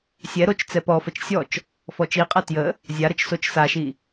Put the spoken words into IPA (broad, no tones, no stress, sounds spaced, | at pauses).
sʲ ɛ ɾ o t͡ʃ t͡s ɛ p ɔ f ə t͡ʃ sʲ ɔ t͡ʃ | f ɔ t͡ʃ i qʼ ɤ t j ə | zʲ a ɾ ə t͡ʃ s o t͡ʃ s a ʃ i